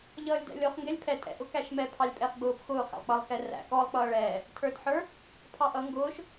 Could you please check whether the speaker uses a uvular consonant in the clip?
yes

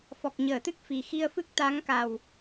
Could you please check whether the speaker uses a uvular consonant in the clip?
no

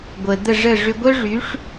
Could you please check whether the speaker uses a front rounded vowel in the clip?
yes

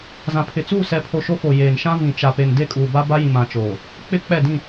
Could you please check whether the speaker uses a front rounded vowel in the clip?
no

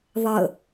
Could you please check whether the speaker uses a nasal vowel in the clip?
no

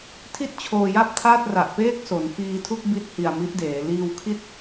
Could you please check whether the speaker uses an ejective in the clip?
no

